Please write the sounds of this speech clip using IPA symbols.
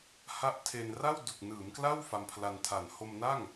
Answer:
ha˦˥ʔtʰe˧n ra˥˩wdu˨˩k̚nɯː˩˦mkla˥˩w fa˧mpʰla˧ntʰa˨˩n ho˧mna˥˩ŋ

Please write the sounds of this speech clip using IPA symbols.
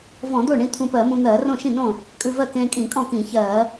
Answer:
vɔ̃˧˩˧d̪o˥˩ɳĩ˧ t̪ʰũ˧pɜ˧˩˧mũ˧ n̪ɜː˧˩˧rõ˥˩ʃĩ˥˩nõ˥˩ | kʼʉ˧vɜ˥˩kẽː˧kʼĩ˧˩˧ kʼɔ̃˥˩kĩ˧˩˧çɜː˧˩˧

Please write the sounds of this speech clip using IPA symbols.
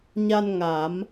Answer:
ɲa˧n ŋa˨˩˦m

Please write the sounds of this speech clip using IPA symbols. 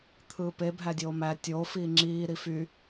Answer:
t̪ʰɯːpe bʱædʲoːmæ tʲo fiːŋ͡ǁiː ɾify

